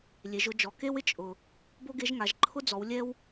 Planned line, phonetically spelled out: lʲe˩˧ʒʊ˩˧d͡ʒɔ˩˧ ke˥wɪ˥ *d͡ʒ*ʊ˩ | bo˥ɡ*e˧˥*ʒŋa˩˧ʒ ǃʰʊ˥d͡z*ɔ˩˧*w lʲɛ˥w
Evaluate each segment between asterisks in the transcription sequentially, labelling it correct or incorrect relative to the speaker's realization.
incorrect: t͡ʃʼ, correct, correct

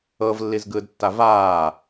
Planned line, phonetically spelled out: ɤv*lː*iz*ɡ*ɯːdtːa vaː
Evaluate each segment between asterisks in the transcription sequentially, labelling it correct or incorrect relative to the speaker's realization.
correct, correct

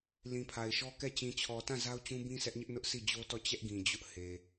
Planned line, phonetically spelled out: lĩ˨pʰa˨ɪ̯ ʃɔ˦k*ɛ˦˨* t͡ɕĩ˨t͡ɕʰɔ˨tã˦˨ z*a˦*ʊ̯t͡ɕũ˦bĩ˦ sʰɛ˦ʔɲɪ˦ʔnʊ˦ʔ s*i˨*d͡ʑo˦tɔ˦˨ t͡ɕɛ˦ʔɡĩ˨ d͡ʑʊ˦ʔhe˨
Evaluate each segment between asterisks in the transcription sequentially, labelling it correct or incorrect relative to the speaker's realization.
correct, correct, incorrect: i˦˨

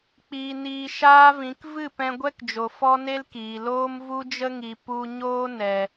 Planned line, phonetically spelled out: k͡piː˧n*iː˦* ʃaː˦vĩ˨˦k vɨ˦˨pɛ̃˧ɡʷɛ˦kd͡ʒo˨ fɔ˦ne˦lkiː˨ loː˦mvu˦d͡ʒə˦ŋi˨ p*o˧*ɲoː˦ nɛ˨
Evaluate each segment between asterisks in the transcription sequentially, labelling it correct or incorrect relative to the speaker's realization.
incorrect: iː˧, incorrect: u˧

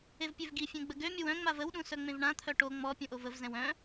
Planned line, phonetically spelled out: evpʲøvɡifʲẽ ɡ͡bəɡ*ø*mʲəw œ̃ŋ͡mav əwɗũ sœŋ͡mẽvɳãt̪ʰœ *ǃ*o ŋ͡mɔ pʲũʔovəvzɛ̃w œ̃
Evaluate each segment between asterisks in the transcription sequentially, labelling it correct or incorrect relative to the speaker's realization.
correct, incorrect: ʈ

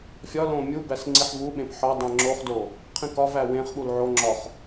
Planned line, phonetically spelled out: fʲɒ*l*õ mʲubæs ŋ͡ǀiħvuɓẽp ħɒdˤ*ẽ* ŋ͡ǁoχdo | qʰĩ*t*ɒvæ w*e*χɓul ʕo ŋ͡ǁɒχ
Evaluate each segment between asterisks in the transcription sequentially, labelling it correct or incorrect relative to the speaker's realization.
correct, correct, incorrect: k, incorrect: ẽ

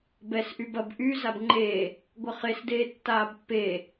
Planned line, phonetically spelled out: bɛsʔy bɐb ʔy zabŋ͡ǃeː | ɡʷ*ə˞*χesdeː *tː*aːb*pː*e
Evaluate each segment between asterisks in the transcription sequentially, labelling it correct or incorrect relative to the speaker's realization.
incorrect: ɐ, correct, correct

